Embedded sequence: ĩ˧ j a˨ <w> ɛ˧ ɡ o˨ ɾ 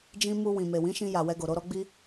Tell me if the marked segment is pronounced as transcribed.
yes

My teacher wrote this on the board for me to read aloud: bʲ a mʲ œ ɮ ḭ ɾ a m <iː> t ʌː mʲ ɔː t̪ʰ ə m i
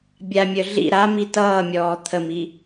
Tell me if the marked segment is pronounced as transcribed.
no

